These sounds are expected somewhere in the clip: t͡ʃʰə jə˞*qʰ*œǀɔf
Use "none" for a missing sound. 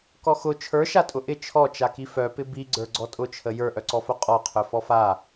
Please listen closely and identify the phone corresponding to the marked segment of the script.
ʔ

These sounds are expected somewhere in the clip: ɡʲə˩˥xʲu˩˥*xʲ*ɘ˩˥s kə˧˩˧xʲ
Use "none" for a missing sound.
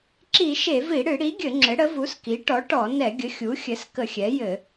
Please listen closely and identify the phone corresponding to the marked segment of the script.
xʲ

